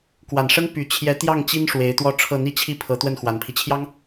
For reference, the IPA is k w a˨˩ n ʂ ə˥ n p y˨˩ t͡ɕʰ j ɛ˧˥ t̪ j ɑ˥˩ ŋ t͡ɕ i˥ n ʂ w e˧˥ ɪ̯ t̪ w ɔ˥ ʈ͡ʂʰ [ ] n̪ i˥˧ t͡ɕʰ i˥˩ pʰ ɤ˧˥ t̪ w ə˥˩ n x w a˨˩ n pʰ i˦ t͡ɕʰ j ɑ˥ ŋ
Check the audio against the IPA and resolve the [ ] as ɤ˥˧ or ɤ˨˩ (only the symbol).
ɤ˥˧